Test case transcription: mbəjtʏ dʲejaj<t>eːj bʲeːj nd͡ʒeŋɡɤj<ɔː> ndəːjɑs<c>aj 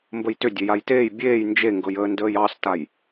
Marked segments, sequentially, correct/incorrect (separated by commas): correct, incorrect, incorrect